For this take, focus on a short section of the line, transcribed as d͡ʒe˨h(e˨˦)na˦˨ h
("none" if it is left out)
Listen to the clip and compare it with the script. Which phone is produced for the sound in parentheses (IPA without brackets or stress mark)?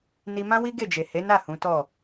e˨˦